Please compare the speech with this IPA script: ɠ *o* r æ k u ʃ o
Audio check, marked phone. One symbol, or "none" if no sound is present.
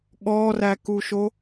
ɔ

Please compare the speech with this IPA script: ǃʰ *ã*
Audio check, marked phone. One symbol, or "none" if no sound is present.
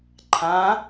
ã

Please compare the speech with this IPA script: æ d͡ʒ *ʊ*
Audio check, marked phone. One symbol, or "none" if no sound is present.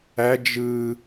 ɯ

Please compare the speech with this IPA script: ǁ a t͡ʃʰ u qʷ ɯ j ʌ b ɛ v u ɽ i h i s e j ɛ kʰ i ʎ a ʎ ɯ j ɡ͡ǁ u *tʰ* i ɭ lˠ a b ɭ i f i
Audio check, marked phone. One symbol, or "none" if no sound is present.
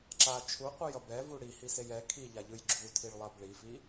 tʰ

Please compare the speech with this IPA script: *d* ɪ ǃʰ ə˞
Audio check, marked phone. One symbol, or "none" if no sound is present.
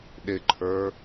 ɗ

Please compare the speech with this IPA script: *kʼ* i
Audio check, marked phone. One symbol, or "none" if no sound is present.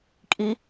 kʼ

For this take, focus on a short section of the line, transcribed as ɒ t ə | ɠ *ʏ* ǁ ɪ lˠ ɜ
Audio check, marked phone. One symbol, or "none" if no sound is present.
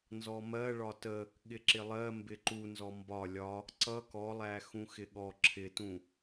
ɪ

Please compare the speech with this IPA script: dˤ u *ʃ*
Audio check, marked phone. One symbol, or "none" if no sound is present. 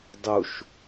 ʃ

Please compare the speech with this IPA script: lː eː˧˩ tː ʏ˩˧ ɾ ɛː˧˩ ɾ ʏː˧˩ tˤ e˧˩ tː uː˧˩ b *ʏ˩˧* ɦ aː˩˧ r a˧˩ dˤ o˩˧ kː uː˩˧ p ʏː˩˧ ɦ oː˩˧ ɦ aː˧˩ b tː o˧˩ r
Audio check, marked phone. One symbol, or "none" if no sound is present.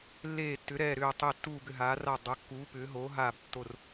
ʏ˧˩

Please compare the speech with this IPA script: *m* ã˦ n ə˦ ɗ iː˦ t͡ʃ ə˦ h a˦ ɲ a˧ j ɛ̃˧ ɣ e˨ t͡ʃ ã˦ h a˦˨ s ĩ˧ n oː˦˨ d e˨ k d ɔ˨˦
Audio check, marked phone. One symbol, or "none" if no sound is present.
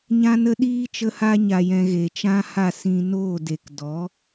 ɲ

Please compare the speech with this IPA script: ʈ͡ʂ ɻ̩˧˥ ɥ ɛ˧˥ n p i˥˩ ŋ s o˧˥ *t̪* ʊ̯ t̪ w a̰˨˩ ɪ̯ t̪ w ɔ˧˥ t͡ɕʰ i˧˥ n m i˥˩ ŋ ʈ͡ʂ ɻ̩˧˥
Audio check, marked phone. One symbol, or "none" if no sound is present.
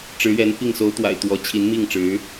none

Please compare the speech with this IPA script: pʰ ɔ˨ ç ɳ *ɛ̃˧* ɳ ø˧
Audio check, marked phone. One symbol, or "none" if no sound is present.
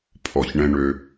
ɛ̃˧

